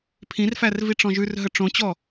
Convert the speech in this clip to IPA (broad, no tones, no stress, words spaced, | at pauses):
pʰĩrfær viʈ͡ʂɔ̃ʒʉrɦə ʈ͡ʂõt͡ɕɔ